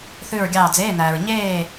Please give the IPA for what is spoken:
θ ʉ˦˨ ɹ ɡʲ ɑː˦˨ d͡z eː˧˥˧ n æː˨ ɹ ɲ eː˦˨

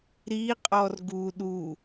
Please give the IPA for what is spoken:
ɾ i qʼ ɔ r ɡ u ɗ u

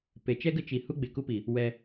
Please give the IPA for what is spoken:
p e˨ t͡ʃ ɛ˦ ɡ ə˦ t͡ʃ i˨ h u˦ ɡ͡b e˨ k u˦ p i˨ | w ɛ˧

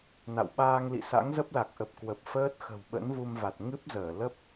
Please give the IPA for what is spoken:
n a̰˧˨ w ɓ aː˧ ŋ l ḭ˧˨ s a̰˧˥ ŋ z ə˦˥ p̚ l a˨˩ k̚ ʔ ə˨˩ p̚ k w ə˨˩ p̚ f əː˦˥ t̚ x ə̤˨˩ w ɓ ə̰˧˥ n v u˧ m v a˨˩ t̚ ŋ ɨ˦˥ p̚ z əː˧˩ l ə˦˥ p̚

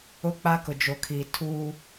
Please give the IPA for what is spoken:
ʊ˦ k͡p a˦ k ʊ˨ d͡ʒ o˨ kʰ i˨ tʰ uː˦

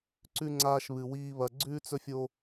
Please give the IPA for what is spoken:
ǀ ʉ˥ ŋ͡ǀ aː˥ ʃ β ɨ˧ w iː˥ β ɐ˧ ɡ͡ǀ ʉ˥ t͡s ɵ˥ fʲ o˥

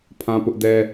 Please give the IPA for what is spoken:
pʰ ã˦ p ʊ˦ ʔ d ɛ˦

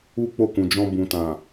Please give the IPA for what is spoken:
u˦ k͡p o˦˨ k ũ˨ d͡ʒ ɔ̃˧ b ũ˨ t ã˨

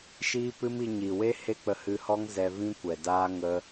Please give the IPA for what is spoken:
ʃ iː˦ p ɨ˦ m i˧ ɲ i˨ w e˦ h e˦ k͡p ə˧ h ɨ˧ h ɔ˦ ŋ z ɛ˧ v ĩ˦ kʷ ɛ˨ d aː˦ ŋ ə˦

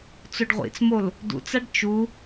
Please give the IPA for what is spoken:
t͡s o ɖ ʁʷ ḭ t͡s m o l | d ṵ t͡s a ɖ t͡ʃ u

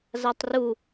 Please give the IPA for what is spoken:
z a tˤ r u

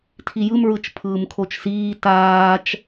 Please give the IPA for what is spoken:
tʰ i j ɯ m ɹ ɯ t͡ʃ pʰ ɯː m kʰ o t͡ʃ s iː t aː t͡ʃ

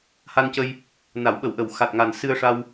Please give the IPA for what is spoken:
h a˧ n c ə˧ j | n a˨˩˦ w ɓ ə˨˩˦ w ʔ ə˨˩ w x a˨˩ t̚ ŋ a˨˩ n s ɨ˧ ə̯ ʂ a˧ w

